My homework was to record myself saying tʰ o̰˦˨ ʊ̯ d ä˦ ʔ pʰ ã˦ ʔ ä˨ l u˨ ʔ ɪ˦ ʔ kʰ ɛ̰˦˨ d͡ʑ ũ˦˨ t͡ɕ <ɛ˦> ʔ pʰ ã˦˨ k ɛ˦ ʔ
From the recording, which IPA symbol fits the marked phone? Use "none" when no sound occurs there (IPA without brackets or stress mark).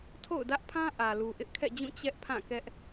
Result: ɛ˦